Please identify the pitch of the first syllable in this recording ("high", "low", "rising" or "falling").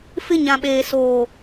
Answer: high